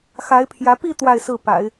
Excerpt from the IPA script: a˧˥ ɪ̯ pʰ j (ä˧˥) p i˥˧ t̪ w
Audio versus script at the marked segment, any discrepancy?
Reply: no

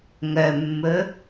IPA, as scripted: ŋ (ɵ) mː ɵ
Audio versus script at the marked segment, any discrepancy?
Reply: yes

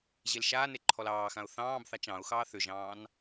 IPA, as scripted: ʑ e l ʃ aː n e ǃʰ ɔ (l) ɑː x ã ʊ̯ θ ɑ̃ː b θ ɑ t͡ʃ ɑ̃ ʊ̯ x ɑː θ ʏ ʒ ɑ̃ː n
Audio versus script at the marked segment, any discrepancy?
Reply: no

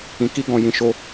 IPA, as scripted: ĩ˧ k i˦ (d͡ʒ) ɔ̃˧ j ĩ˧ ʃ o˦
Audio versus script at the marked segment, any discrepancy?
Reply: yes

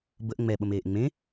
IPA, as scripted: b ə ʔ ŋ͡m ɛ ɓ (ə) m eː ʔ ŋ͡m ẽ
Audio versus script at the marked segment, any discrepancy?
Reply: no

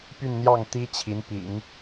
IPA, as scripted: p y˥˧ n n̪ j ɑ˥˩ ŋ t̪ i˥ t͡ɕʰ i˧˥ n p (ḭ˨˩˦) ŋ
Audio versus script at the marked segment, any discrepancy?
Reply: no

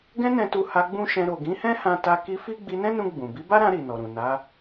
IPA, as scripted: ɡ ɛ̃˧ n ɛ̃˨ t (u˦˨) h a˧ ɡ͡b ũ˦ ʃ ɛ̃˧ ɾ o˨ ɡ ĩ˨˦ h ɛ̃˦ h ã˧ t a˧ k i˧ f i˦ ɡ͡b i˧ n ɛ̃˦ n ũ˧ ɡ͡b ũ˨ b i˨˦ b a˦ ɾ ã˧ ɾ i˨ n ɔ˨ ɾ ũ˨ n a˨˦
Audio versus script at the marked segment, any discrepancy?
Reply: yes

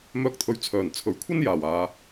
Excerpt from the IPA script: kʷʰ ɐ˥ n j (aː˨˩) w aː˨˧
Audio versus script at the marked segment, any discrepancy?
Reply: no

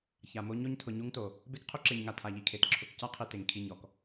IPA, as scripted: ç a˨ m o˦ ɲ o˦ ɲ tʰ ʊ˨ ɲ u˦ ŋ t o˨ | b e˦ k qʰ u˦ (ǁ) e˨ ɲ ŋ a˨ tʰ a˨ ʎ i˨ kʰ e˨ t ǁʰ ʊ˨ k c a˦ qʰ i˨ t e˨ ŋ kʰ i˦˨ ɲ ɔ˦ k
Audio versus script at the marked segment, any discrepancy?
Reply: no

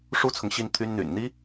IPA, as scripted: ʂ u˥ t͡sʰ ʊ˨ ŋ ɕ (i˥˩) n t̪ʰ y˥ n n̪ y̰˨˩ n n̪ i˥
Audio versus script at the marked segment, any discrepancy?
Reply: no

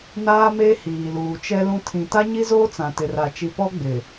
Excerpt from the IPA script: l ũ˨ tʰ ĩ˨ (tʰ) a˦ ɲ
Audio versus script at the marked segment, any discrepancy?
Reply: yes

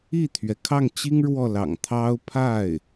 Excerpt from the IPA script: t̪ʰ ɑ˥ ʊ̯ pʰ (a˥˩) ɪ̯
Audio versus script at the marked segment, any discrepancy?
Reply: no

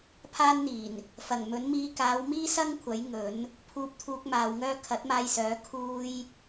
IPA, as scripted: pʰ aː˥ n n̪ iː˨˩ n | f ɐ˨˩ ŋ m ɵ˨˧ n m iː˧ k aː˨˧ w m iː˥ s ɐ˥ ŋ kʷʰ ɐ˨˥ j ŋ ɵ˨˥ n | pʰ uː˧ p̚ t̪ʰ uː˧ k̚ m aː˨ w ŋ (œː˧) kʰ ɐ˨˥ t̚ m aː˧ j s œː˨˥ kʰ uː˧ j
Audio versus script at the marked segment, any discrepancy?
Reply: yes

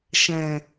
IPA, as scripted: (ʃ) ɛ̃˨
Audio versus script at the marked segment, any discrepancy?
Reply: no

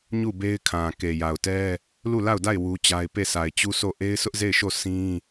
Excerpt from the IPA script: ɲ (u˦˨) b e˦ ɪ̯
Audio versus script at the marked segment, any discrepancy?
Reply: no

